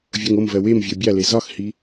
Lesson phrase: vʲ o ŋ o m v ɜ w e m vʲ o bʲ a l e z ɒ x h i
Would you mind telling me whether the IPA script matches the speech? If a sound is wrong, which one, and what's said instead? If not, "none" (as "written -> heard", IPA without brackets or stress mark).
none